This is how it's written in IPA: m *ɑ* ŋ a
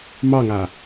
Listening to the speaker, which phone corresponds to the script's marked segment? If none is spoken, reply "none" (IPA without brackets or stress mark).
ɑ